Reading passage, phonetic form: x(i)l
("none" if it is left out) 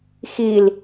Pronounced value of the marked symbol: i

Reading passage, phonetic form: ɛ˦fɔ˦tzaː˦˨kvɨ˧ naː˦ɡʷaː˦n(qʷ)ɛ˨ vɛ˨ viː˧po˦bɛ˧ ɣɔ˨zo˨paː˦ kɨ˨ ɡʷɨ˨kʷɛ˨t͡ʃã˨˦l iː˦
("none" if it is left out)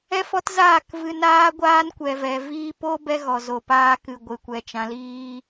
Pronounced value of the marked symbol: kʷ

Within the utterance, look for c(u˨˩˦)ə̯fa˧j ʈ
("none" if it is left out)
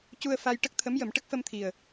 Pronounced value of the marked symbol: u˧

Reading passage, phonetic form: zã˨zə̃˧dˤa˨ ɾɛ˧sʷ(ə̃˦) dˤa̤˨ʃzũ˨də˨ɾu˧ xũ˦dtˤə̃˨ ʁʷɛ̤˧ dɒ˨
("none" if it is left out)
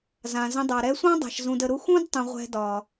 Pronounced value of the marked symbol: ɑ̃˦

